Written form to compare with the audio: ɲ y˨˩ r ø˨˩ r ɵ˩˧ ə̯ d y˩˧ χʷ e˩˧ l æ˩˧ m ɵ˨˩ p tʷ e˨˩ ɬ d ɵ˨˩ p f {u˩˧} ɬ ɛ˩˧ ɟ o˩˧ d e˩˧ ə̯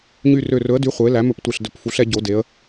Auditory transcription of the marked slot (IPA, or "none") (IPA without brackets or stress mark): u˩˧